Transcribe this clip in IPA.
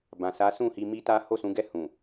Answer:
bã˨sa˨˦sũ˦˨hi˧ mi˦ta˦ ho˦˨sũ˨˦ɡɛ˦˨ hũ˨

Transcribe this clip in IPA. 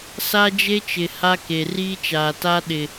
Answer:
sa˦d͡ʒe˦ t͡ʃɪ˨ha˦ ke˨riː˦ t͡ʃaː˨ta˦ ɗɪ˨

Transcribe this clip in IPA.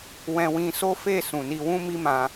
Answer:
wɛ̃˧ wĩ˧so˦fe˦˨ sũ˨ni˧wũ˦ mi˦mã˧

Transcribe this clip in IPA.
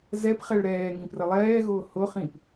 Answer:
zɛpχɛɭ ɾɛːŋĩprə lˠɛːɣʊː hʊχĩp

